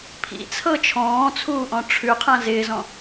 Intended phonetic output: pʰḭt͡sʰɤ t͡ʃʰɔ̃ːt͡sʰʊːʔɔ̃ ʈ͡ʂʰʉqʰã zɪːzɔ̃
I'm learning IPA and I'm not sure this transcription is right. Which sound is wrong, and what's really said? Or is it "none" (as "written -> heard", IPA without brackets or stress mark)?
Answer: ʊː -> uː